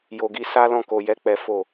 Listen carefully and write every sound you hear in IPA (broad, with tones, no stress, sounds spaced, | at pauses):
j o˧ ɡ i˦ s a˦ l ɔ̃˦˨ k o˧ j ɛ˦ k͡p ɛ˦ f o˦˨